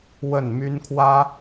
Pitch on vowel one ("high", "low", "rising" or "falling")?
falling